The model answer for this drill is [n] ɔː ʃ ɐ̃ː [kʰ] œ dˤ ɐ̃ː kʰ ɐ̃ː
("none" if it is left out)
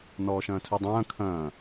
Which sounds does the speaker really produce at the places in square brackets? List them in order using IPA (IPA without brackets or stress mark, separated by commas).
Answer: n, tʰ